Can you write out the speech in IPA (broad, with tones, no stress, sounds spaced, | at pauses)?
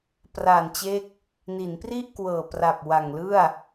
p r a˨˩ n t͡ɕ e˦˥ k̚ | n i˩˦ n p r i˥˩ ʔ k w ɤː˨˩ p r a˨˩ p̚ w a˨˩ ŋ l ɯ˥˩ a̯